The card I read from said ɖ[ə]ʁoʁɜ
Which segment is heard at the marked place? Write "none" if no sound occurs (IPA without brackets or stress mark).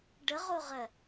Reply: ə